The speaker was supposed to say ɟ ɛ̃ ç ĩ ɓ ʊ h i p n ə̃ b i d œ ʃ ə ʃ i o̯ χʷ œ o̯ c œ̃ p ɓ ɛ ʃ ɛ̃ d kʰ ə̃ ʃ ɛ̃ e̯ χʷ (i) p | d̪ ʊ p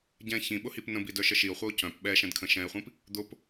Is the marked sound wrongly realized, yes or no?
yes